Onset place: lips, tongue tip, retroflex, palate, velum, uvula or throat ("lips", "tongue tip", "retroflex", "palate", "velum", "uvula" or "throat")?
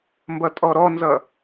lips